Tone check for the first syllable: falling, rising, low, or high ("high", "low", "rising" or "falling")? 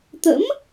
rising